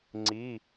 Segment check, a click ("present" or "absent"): present